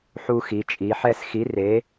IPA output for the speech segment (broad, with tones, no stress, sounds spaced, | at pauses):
ħ u˦ x i˩˧ t͡ʃʼ i˩˧ ħ ɛ˦˨ s x i˨˥ r e˨˥